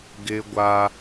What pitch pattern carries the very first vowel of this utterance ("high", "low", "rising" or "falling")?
high